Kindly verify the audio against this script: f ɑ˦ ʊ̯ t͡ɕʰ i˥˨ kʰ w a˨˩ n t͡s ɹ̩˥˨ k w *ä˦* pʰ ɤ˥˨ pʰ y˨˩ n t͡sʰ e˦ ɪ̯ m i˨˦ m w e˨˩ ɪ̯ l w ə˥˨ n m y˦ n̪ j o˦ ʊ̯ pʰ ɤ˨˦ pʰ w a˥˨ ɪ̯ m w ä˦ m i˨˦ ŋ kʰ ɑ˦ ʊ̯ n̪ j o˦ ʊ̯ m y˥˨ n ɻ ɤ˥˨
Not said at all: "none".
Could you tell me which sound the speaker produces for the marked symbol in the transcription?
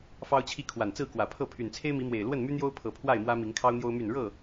ä˨˩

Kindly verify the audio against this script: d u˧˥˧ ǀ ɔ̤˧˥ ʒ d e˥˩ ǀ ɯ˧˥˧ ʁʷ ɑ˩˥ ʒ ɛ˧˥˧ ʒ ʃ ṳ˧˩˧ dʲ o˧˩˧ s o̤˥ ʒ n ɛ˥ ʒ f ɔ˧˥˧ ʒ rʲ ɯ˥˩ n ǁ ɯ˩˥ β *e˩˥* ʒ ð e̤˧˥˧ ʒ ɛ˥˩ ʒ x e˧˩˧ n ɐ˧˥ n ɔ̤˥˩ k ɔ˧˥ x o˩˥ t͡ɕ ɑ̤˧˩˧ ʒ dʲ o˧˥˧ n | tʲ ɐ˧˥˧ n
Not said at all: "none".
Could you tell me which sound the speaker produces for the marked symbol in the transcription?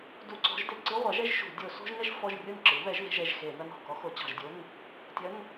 ɛ˩˥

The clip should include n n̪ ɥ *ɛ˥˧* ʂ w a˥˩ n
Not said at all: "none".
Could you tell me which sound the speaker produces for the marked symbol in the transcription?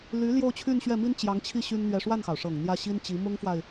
ɛ˥˧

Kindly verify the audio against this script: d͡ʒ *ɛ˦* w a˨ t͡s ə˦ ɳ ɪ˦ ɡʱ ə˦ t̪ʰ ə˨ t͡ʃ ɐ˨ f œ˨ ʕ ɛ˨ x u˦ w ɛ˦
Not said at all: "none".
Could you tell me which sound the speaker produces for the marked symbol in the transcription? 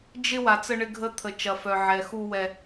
ɪ˦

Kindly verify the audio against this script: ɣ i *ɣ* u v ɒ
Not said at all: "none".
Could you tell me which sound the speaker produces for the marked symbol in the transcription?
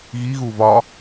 ɣ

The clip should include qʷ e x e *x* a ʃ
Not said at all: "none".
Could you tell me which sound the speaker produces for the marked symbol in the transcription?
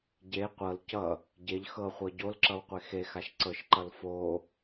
x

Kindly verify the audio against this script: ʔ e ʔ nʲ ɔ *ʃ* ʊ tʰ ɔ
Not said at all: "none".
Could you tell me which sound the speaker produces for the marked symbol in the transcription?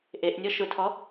ʃ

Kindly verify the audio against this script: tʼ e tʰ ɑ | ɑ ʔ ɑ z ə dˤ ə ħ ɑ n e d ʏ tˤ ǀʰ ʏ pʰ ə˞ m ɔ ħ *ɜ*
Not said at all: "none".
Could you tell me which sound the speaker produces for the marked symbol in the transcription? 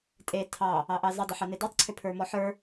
ə˞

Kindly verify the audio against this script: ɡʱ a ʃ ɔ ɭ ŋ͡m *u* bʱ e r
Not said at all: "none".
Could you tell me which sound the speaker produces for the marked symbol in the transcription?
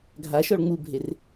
u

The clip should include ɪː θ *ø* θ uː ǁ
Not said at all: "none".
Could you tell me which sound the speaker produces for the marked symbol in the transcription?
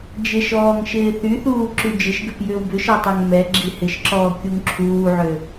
y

